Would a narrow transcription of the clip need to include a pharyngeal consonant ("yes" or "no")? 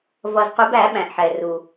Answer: yes